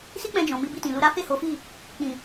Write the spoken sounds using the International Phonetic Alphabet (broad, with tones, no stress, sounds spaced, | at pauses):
s i˦ k͡p ɛ̃˧ d͡ʒ ɔ̃˨ m i˧ b i˧ t ĩ˨ l u˧ ɾ a˦ f e˦˨ h o˨˦ f i˦˨ | k͡p ĩ˨